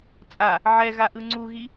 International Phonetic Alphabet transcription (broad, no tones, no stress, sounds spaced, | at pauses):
t͡sʼ a | ʕ ɛ ɣ a ʔ ɯ ŋ͡ǀ u ɣ i